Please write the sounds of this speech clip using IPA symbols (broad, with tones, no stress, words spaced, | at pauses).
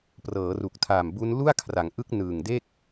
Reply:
prɤː˩˦ru˨˩k̚tʰaː˨˩m bu˦˥n lu˥˩a̯kʰra˩˦ŋʔɯ˦˥k̚ nɯː˨˩ŋde˥˩k̚